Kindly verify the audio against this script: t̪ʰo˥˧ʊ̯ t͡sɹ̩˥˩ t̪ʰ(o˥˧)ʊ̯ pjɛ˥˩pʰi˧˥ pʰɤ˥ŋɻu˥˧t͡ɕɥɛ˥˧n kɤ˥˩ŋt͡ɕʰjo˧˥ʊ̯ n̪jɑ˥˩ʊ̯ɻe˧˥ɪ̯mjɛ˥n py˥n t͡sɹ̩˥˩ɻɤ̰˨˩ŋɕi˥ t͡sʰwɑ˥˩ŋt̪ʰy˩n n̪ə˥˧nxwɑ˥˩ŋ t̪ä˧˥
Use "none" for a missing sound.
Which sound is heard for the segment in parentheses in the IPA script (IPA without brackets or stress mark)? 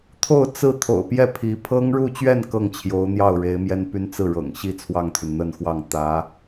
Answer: o̰˨˩